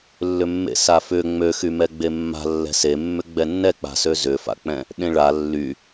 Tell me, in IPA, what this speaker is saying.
lː ʏ mː ḛ s a f ʏ ŋ͡m ø x y m ɛ ɡ͡b e mː a̤ lː ɛ̤ s e mː ʏ ɡ͡b ɛ nː ɛ k͡p a̤ s ø z ʏ f a̰ k͡p ɛ̃ | ɗ ẽ ɭ a lː y

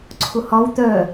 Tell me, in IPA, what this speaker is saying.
ǀʰ ʊ h ɒ w t̪ œ

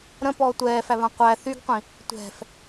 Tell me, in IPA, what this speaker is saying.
ɾ ə̃ p ɔː tʷ ɛː f æ β ã qʷ æ θ y ɡ qʷ ĩ | tʷ ɛ̤ f

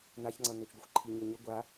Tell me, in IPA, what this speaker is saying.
n̪ a ç ŋ͡ǀ ʌ n̪ ø t͡ʃ ɡʷ ʌ xʷ ǃʰ i ɲ ø ɲ ə ɡʷ a

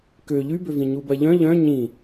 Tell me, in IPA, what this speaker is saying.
k ø ʎ y b ø v ĩ ɲ u b ɐ ʎ œ̃ ʎ œ̃ ɲ ĩ

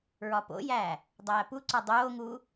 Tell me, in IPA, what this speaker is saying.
ɹ ɒ p o̰ j æː | dˤ æː p u ǀ ɒ dˤ oː ŋ uː

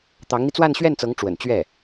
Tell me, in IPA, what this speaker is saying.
t̪ ɑ˧˥ ŋ n̪ i˧ t͡s w a˥˧ n ɕ ɥ ɛ˥˩ n t͡s ɤ˧˥ ŋ ʈ͡ʂ w ə̰˨˩ n t͡ɕ ɥ ɛ˥˩

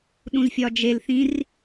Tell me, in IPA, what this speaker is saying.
ɗ ũ z fʲ ɒ d͡ʒ e l θ ĩ r

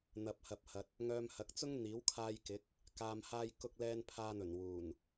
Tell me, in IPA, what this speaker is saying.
n̪ ɐ˨ p̚ h ɐ˨ p̚ h ɐ˨ t̚ | ŋ œː˧ m h ɐ˨˥ k̚ t͡s ʊ˥ ŋ n̪ iː˨˥ w kʰ aː˧ j k ɪ˨˥ k̚ | k aː˨ m h aː˧ j k ʊ˧ k̚ l ɛː˧ n pʰ aː˧ n̪ ɵ˨˩ n w uː˨˩ n

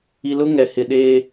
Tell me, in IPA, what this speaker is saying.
i˨ l ʊ˦ ŋ ɛ˨ h ɪ˨ ɗ eː˦

